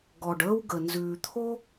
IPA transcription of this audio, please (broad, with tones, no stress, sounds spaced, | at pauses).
ɡ ɔ˩ ɖ əː˧ w ɡ ə˩ n z ʉː˩ t̪ʰ o˥